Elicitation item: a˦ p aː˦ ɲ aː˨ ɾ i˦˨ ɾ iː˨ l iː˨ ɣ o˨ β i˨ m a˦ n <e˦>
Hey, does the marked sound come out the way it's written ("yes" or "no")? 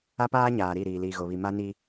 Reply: no